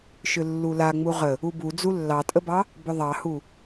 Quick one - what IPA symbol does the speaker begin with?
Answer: ʃ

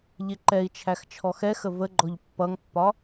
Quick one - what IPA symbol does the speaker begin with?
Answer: ʎ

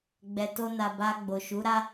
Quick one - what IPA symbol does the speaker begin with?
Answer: ɡ͡b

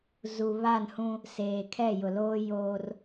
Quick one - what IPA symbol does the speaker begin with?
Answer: z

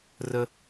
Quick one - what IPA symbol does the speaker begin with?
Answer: r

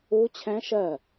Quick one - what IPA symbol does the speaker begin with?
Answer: u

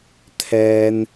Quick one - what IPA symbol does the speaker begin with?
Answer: t̪ʰ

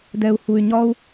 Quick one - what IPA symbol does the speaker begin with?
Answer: d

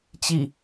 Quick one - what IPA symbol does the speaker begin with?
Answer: t͡ɕ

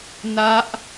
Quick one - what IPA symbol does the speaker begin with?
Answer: n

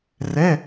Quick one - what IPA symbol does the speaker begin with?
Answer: r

